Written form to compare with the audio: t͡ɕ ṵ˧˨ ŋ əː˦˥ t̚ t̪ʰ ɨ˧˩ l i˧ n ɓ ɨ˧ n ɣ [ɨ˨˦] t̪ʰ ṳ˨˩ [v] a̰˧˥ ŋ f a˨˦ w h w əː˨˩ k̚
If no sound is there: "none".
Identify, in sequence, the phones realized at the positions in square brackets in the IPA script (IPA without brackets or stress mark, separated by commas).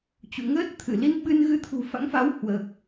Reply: ɨ˧, f